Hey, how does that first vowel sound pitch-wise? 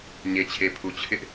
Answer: low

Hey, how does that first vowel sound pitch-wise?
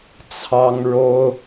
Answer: high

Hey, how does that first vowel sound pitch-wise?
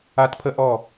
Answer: high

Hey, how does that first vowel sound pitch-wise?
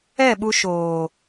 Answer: falling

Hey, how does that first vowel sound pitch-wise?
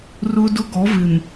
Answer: high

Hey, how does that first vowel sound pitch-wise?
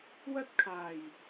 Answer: high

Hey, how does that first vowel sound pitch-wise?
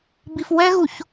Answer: low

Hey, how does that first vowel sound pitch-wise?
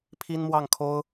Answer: high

